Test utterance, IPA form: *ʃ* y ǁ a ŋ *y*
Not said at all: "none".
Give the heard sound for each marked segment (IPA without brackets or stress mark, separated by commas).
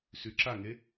s, e